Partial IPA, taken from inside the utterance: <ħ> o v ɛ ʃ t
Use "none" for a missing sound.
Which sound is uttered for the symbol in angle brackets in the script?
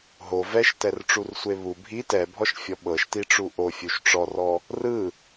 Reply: ɦ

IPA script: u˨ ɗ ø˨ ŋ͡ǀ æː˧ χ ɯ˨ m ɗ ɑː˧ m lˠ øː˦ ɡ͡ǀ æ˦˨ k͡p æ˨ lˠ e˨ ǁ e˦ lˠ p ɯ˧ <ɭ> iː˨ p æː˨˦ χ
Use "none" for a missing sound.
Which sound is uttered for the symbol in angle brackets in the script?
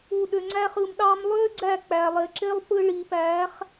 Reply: ɭ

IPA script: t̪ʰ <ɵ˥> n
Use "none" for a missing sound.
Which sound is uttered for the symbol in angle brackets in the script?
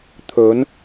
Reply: ɵ˨˧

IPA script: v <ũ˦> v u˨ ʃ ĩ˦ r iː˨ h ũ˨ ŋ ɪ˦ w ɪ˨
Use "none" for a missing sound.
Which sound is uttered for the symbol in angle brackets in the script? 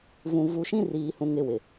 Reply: ũ˨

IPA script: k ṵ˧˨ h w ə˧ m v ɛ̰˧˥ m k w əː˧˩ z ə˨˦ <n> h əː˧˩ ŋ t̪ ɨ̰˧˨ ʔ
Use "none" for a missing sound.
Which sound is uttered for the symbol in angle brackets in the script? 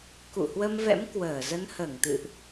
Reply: n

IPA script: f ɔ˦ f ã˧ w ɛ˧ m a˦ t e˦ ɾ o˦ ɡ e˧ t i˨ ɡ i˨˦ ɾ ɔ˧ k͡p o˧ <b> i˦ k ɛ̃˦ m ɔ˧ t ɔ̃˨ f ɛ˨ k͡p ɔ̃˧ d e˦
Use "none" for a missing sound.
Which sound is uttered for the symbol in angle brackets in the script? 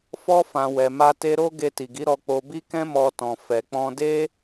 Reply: b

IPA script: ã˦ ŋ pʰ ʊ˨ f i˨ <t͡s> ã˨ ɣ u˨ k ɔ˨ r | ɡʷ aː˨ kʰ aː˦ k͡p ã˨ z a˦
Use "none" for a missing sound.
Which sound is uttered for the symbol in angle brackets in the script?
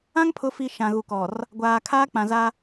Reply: ʃ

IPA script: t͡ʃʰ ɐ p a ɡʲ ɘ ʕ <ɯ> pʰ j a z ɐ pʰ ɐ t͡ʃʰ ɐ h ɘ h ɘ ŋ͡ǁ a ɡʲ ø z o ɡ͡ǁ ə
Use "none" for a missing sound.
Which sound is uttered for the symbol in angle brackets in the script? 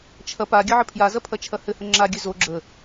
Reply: ə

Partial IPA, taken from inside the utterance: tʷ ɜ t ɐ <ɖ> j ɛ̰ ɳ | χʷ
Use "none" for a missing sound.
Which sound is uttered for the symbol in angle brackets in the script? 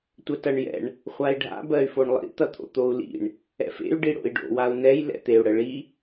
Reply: ɳ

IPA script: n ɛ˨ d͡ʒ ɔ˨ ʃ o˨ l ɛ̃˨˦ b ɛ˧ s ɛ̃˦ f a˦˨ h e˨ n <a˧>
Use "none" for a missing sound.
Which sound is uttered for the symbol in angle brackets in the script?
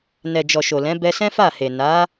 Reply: a˨˦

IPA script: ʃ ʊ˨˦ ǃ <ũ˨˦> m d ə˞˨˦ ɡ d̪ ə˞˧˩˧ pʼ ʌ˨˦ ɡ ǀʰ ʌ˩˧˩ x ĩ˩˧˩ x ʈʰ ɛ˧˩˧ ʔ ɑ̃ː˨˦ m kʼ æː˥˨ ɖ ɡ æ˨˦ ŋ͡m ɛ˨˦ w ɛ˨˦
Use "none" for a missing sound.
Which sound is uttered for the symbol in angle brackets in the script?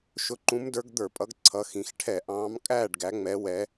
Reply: ũ˨˦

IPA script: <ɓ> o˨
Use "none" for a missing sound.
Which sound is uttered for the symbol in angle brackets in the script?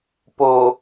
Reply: p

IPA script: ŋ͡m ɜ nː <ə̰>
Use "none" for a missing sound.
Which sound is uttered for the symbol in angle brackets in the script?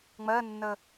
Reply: ə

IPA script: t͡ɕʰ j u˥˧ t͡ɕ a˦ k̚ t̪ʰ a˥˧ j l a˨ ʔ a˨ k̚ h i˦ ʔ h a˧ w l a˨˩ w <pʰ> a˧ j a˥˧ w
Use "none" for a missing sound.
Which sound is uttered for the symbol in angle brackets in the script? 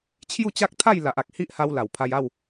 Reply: pʰ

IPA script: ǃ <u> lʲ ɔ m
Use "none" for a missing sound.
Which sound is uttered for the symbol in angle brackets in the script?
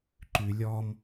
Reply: ʉ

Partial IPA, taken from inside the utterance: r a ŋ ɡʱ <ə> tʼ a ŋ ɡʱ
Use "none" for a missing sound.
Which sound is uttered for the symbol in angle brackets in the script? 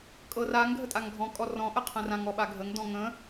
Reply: ə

